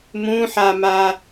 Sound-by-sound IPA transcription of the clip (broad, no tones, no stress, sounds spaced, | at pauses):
m ũ ħ a m a